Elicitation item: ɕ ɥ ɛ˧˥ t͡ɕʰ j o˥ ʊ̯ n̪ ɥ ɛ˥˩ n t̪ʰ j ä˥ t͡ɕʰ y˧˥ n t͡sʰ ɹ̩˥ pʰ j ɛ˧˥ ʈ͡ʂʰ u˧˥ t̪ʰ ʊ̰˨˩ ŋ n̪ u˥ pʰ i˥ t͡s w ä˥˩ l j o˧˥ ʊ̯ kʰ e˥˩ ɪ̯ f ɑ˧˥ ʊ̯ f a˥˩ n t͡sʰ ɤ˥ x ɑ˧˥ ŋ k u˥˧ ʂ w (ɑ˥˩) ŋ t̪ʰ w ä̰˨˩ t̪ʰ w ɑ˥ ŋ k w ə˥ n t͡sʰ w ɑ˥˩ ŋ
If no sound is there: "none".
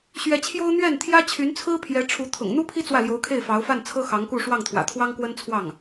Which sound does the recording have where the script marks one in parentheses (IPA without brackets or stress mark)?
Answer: ɑ˥˩